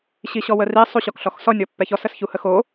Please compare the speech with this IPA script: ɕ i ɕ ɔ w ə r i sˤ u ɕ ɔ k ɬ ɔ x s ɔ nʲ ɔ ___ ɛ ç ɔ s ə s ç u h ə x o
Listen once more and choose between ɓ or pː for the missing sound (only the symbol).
pː